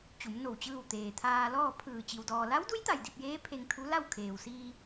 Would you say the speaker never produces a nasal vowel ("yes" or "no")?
yes